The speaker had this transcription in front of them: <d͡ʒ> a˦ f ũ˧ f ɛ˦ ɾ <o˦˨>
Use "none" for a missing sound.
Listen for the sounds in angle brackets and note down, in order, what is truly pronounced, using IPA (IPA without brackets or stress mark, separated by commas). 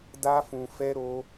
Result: d, o˦